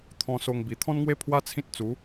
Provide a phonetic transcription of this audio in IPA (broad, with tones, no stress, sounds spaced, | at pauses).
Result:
t̪ʰ ɔ̃˧ s o˧ ŋ b i˨˩ t̪ʰ ɔ̃˦ n ŋ w e˦ pʰ w a˦ t͡sʰ ĩ˦ t̚ t͡s u˨˦